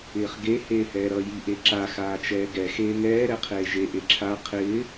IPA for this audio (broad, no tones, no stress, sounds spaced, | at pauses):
ɪː χ ɡ e h eː h ɛː ɾ ʌ j i ʔ e ǁ a x aː t͡ʃ ɛː ɡ ɛ x eː ŋ ɛː ɾ ɛ qʰ eː ʒ e ʔ e ǁʰ a qʰ ɪː